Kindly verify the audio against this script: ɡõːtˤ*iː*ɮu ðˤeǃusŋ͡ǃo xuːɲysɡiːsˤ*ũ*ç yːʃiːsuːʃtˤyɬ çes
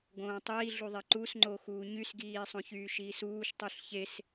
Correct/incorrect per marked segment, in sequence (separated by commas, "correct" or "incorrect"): correct, incorrect